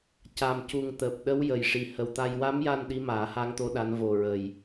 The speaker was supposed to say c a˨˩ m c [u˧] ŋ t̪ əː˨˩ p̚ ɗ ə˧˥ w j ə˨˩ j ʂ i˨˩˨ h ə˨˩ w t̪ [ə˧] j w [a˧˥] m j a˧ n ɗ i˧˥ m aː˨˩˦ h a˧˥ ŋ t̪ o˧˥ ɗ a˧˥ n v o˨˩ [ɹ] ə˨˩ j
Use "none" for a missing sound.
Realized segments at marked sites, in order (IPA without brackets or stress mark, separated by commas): u˨˩, a˧, a˧˥, ɹ